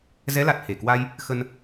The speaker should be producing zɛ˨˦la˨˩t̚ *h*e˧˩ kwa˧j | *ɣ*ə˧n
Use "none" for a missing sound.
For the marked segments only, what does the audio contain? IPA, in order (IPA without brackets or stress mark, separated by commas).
h, x